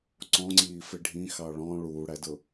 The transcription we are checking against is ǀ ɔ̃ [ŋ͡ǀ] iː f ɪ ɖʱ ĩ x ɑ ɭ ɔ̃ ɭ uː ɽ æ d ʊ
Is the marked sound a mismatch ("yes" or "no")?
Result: no